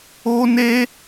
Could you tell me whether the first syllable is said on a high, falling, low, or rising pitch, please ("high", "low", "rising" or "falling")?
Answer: high